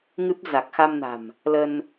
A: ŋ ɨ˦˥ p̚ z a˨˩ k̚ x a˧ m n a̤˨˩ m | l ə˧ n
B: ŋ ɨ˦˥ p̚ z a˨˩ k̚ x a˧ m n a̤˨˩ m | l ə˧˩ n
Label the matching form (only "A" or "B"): A